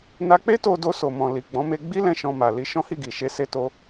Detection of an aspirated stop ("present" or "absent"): absent